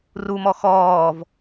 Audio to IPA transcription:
r u m ɔ x ɔː v

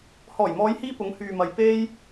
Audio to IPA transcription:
h ɔː˨˩ j m ɔː˨˧ j h iː˧ p ʊ˨˧ ŋ h yː˨ m ɐ˨ j p e˥ j

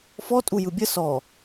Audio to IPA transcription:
f ɔ tʼ u j ɯ bʲ ə s ɔ

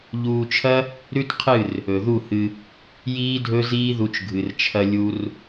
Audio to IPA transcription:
ʎ uː˧ t͡ʃʰ ɐ˦ | ɾ ʉ˦ t qʰ ɨ˦˨ r | ɵ˨ ð u˦˨ h ɨ˧ | j iː˦ dʱ ɵ˦ z iː˦ ð u˧ t͡ʃ ɡʱ ɨ˨ r t͡ʃʰ ɐ˧ lʲ u˧ r

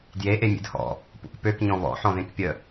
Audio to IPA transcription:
d j e ʔ e mʲ ḛ d h ɔ̰ | p ṵ k p ø k ɲ ɔ̃ β ɔ̰ ħ ɔ̃ ð ẽ k pʲ ə

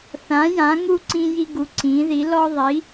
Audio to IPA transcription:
θ ã˨˦ j ã˨˦ ŋ u˦ ǀ ĩ˦ j i˦ ɡ u˨˦ ǀ ĩ˨˦ ð i˨˦ l ɔ˦ ðˤ i˨˦

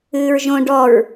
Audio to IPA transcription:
ɨː ɹ ʒ õ ɖ ɔ ɹ

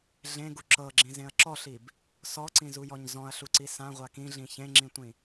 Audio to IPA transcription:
ɮ ẽ ɡ u ǁ ɤ ɡ͡ǁ ĩ z ẽ ɐ̯ ǁ ɔ ɬ i b | s ɔ ǀ ĩ z u j ɔ ɲ z ɔ̃ ɐ̯ ɬ u ǀ i s ã ʁʷ a k ĩ ɮ ĩ ç ẽ ŋ͡ǁ ĩ tʷ ĩ

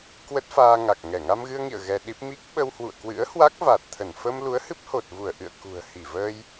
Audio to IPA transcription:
k w ə˦˥ t̚ f aː˧ ŋ a˨˩ k̚ ŋ ɛ˧˩ ŋ a˧ m ɣ ɨ˧ ə̯ ŋ ḭ˧˨ ə̯ ɣ ɛ˧ ɗ i˦˥ p̚ m i˦˥ k̚ ɓ ə˧ w h w ṵ˧˨ ə̯ k w ɨ̰˧˥ ə̯ h w a˦˥ k̚ v a˨˩ t̚ t̪ʰ ə˧˩ n f ə˧ m l u˨˦ ə̯ h ɨ˦˥ p̚ h o˨˩ t̚ v u˧˩ ə̯ ʔ ɨ̰˧˨ ə̯ k ṳ˨˩ ə̯ h i˧˩ v əː˧ j

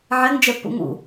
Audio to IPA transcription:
ʕ ɛ ŋ d͡ʒ ɛ pː ṵ ŋ ṵ

